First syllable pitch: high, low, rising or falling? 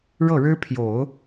falling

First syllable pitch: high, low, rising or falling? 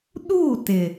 falling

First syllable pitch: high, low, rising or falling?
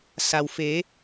low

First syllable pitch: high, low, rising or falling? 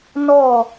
falling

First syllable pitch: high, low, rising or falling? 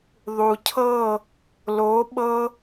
low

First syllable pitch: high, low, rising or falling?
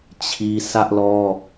high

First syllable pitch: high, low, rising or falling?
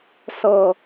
low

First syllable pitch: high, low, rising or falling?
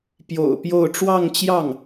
low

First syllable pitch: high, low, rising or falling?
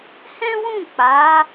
high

